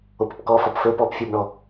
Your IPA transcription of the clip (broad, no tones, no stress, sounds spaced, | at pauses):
o p ʊ p k ɔ f ɒ p f ɵ p ɔ p fʲ u b ɳ ɔ